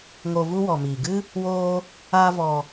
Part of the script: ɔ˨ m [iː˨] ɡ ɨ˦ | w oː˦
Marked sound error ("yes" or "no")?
no